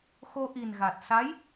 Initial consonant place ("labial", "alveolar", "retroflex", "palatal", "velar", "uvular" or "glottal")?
velar